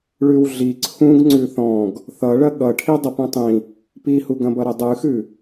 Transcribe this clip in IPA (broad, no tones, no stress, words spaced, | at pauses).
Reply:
ɭʉwɮi ǀʰũɡ ŋ͡ǀʉθɔ̃ɡ | θʌ ɭɐɠʌʈʰi dˤɐpũtˤĩ | pihuɡɐ̃bʌ ɾɐdˤʉxʉ